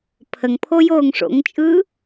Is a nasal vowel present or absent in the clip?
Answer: absent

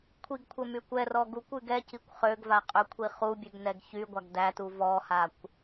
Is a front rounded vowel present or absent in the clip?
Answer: present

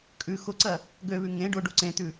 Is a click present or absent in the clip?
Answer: present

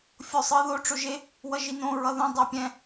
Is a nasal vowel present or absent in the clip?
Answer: present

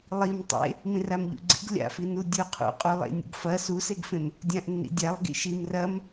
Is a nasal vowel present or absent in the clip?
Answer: present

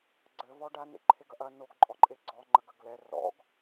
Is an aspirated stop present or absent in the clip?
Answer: present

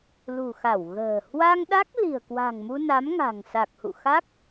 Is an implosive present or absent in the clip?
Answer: present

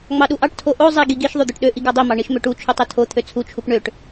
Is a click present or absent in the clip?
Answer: absent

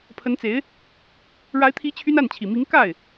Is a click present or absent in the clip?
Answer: absent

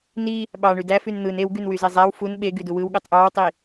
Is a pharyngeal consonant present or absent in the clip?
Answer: absent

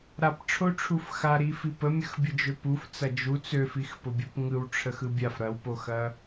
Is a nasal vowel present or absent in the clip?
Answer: absent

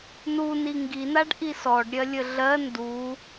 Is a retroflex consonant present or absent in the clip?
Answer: present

